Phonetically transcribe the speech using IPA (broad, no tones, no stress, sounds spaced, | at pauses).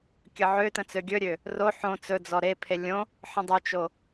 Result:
kʲ ə ʕ ø t ə̃ t͡s ø ɡʲ ɵ ɾʲ ø | r o ħ õ t͡s ɵ d͡z ɔ ɾ e pʰ e lʲ õ | ħ ə̃ dˤ ɵ t͡ʃ o